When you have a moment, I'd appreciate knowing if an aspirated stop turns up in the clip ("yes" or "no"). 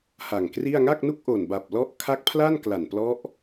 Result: yes